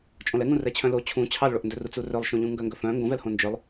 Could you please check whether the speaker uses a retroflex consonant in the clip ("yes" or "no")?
yes